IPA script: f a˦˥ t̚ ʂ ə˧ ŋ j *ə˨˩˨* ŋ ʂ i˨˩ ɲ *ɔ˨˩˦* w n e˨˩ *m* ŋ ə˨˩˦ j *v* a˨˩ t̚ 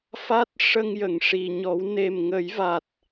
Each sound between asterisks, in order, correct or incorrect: correct, correct, correct, correct

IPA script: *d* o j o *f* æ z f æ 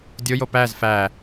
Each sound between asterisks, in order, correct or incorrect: incorrect, incorrect

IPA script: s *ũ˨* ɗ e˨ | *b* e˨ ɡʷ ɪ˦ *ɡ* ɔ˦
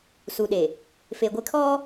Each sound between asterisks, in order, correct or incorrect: incorrect, incorrect, incorrect

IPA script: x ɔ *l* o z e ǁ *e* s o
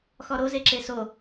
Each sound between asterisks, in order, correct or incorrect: incorrect, correct

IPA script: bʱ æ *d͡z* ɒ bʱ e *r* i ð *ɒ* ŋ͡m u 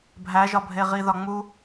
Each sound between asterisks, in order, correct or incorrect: incorrect, incorrect, correct

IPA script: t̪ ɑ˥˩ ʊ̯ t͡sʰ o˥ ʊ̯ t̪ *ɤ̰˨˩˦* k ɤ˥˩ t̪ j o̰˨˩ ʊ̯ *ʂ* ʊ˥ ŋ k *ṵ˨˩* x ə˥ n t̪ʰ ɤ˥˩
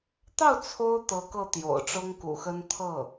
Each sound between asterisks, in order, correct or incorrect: incorrect, incorrect, correct

